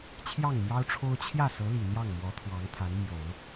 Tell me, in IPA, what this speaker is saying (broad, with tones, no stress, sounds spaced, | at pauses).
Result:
t͡ɕʰ j ɑ˥˩ ŋ m j ɑ˥ ʊ̯ ʈ͡ʂʰ o˥ ʊ̯ t͡ɕʰ j ä˥˩ s ɤ˧˥ l i˨˩ n̪ j ɑ˥˩ ŋ m w ɔ˧˥ t̪ʰ w ɑ˧˥ ŋ t̪ʰ a˧˥ n m j o˨˩˦ ʊ̯